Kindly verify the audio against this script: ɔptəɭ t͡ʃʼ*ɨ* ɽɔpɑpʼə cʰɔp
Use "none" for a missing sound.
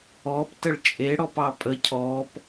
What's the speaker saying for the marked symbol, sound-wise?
e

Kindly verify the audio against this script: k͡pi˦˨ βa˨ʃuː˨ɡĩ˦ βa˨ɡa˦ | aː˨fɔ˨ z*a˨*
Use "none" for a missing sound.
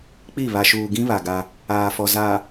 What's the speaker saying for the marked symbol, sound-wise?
a˨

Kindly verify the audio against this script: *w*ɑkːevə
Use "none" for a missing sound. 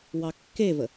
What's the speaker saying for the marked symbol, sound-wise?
w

